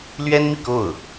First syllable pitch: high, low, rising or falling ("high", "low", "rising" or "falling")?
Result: high